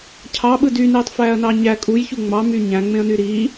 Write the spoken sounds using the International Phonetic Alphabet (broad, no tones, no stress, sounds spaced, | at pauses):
cʰ ɑ ɓ ɯ d y n eː tˤ f æː ɐ̯ n ɑ ɲ æ kʼ u j ç u ŋ͡m ɑ m y ɲ æ̃ ŋ͡m ẽ ɐ̯ n y ɾ i